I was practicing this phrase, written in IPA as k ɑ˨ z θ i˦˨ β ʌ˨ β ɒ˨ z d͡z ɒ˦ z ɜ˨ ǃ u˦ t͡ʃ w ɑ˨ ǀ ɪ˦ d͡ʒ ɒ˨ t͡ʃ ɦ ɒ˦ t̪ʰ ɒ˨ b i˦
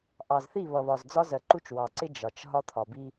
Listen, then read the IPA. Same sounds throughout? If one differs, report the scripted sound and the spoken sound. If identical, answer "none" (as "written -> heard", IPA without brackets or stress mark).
k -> ʔ